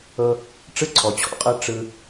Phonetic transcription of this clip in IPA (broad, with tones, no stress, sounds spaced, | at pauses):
ɤ˦ | ʈ͡ʂ ɯ˦ ǀʰ ɔ˨ t͡ɕʰ ɔ̰˦ qʼ ɤ˦ ʈ͡ʂ ɯ˦